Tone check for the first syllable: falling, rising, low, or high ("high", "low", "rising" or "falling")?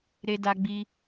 high